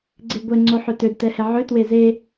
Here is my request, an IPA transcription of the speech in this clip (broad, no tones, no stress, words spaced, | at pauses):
ɡ͡ǀeɡʷɛ ŋ͡ǀoħøtød tɛhɛʕø tweze